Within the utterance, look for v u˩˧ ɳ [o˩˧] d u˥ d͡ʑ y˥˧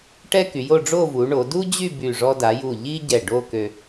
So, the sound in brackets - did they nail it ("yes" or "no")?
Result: yes